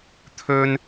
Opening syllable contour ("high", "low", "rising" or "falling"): high